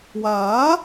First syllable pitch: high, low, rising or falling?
rising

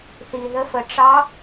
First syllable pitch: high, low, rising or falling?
low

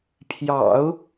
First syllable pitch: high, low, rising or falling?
low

